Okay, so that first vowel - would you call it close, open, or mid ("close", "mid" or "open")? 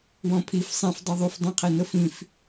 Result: mid